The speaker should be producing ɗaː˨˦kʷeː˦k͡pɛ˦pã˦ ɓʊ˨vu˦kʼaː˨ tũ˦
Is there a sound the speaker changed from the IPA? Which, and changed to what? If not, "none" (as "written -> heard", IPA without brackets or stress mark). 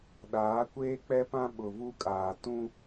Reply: none